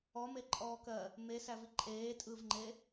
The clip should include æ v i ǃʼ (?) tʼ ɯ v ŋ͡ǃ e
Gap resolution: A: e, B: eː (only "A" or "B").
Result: B